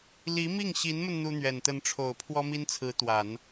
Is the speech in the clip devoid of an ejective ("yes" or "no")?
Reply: yes